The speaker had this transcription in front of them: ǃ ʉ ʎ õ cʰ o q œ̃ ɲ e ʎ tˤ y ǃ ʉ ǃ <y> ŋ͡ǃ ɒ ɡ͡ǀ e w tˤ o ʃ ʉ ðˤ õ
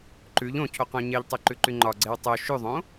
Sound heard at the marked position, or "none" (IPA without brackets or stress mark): y